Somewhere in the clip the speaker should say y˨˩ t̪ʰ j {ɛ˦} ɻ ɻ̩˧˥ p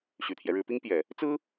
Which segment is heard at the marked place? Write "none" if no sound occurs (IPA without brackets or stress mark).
ɛ˦